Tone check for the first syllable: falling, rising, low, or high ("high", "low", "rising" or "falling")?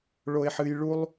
high